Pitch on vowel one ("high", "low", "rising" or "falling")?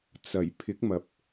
low